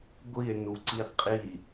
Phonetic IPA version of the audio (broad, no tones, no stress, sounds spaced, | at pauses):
ɡʷ i e̯ n u ǀ i qʼ i